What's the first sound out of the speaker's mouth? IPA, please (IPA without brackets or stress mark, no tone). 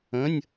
ə̃